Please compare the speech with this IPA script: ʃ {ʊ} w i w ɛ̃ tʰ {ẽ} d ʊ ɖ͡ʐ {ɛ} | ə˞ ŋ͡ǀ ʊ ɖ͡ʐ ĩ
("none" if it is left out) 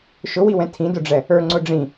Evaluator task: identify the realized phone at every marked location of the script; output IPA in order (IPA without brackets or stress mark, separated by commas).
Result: ʊ, ĩ, ɛ